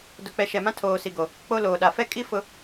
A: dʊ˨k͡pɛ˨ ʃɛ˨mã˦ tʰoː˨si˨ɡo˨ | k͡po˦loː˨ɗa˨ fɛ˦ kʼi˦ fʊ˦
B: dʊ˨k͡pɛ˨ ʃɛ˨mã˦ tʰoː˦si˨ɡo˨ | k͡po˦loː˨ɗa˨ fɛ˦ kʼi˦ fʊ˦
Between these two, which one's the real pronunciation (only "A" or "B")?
A